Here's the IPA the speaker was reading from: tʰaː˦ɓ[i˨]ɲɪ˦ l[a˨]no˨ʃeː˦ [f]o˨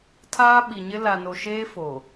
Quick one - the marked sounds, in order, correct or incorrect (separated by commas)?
correct, correct, correct